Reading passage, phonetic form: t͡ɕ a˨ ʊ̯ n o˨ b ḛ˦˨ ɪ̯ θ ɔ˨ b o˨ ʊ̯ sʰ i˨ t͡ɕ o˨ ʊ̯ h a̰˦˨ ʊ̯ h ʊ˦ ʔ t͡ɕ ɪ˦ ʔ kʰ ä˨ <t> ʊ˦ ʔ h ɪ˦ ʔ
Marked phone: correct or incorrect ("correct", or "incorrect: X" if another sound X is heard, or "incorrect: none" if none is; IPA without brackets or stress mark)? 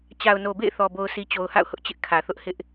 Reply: incorrect: θ